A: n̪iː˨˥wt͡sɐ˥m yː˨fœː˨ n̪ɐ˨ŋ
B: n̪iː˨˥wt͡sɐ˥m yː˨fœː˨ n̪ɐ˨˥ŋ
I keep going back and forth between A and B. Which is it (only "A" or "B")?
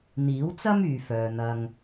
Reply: A